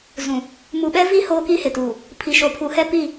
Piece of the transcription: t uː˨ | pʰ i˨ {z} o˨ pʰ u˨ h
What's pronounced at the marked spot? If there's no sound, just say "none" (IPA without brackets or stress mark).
ʃ